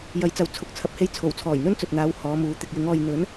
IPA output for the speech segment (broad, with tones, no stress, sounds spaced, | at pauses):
j ɐ˨˥ j t͡s ɐ˨˧ w t͡sʰ ʊ˨˥ k̚ t͡sʰ ɐ˨ p̚ h e˧ j t͡sʰ o˨˩ w t͡sʰ ɔː˨˩ j n̪ ɵ˥ n t͡s ɵ˨ t̚ n̪ aː˨˧ w h ɔː˨˧ m uː˨˧ t̪ ɪ˨ k̚ j ɪ˨˧ ŋ ɔː˨ j n̪ ɵ˨˥ n